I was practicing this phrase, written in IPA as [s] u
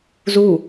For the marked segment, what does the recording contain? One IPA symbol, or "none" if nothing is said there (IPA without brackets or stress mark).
z